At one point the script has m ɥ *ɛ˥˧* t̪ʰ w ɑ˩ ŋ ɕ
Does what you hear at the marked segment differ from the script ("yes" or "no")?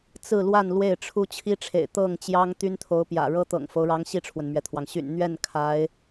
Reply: yes